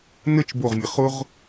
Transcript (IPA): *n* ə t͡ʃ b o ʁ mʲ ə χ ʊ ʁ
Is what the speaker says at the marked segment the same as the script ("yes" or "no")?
yes